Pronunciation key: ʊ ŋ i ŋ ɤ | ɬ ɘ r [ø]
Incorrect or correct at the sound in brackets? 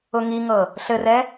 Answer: incorrect: ɛ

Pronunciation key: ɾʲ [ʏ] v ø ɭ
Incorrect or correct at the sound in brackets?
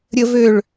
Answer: incorrect: ə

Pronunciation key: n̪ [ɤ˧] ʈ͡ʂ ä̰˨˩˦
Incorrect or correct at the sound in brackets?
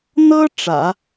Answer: incorrect: ɤ˥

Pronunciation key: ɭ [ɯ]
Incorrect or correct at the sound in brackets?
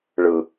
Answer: correct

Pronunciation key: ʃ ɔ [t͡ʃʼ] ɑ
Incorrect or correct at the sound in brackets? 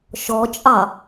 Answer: correct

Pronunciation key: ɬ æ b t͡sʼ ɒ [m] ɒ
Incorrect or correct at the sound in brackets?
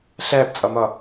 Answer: correct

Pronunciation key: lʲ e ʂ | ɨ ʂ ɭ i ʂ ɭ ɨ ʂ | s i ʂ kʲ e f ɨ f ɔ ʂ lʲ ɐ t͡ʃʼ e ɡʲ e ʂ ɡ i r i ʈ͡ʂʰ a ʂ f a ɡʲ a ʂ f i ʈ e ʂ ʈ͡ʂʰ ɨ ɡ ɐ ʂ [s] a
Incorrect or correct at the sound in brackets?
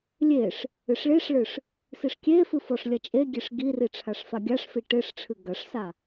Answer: correct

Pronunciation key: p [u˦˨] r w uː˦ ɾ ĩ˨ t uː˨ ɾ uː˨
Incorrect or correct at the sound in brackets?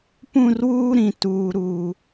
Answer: incorrect: ũ˦˨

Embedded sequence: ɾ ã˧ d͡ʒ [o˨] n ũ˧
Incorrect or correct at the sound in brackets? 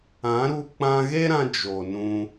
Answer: correct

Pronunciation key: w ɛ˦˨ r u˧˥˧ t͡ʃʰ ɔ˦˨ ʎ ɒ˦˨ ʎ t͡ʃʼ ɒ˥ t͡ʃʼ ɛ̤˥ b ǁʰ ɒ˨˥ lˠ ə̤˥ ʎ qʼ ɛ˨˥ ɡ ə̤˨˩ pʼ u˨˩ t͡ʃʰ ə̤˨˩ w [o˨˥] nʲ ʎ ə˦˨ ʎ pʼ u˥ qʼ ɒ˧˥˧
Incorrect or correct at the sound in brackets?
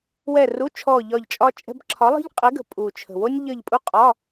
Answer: incorrect: o˥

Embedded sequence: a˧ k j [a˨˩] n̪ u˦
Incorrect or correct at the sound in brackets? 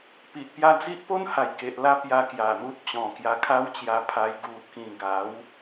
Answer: correct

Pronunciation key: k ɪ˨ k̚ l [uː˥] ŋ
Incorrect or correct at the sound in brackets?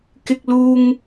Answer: incorrect: uː˨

